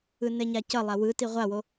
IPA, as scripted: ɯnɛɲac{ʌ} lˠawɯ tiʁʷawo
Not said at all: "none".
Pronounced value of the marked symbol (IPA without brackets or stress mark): ʌ